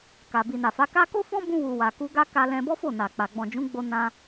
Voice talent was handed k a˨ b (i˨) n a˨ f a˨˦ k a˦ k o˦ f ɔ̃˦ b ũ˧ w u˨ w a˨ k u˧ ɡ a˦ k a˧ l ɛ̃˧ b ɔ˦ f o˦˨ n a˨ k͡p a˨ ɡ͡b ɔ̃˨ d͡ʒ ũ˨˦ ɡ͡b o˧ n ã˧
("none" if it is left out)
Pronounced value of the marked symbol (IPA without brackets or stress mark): i˨